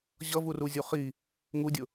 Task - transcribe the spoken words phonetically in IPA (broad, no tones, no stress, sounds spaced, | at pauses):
ʑ ʌ v u r u zʲ u χ i | ŋ u dʲ ʊ